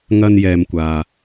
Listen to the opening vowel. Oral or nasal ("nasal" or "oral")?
oral